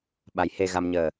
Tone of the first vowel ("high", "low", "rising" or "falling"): rising